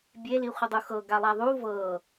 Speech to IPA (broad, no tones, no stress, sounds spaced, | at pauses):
bʲ e l i χʷ ə dˤ u x ɤ ɡ a lˠ a ðˤ u v ɤ